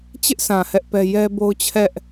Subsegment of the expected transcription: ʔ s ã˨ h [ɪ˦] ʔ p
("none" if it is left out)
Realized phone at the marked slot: ɛ˦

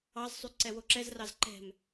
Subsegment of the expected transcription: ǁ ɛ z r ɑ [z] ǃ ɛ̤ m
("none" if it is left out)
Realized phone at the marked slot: z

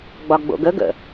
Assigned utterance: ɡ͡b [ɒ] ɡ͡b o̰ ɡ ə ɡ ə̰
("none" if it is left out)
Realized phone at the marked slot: ɒ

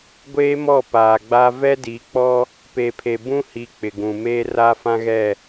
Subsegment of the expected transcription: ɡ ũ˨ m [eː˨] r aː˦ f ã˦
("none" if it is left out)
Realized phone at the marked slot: eː˦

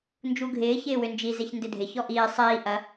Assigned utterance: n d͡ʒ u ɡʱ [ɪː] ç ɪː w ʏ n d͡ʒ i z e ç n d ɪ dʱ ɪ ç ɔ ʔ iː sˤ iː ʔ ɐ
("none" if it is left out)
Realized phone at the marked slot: ɪː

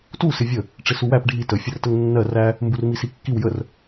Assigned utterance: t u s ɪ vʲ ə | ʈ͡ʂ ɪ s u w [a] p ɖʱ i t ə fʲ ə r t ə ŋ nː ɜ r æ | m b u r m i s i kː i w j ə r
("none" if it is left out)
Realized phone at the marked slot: æ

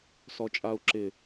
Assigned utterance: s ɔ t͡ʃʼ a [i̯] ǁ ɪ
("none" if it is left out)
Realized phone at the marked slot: u̯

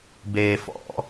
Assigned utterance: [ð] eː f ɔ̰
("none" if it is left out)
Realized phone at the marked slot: b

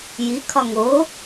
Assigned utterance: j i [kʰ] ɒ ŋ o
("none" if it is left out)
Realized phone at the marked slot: kʰ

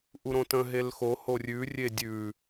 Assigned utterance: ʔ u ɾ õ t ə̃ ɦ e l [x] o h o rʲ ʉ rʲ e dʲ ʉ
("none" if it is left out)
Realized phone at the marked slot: x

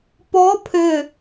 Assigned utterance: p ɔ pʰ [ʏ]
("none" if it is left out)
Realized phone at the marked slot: ʏ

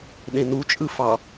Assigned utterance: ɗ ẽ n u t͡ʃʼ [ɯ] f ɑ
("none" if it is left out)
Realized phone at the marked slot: ɯ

